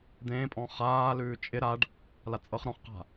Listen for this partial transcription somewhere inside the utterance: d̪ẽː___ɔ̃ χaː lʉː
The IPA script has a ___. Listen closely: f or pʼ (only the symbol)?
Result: pʼ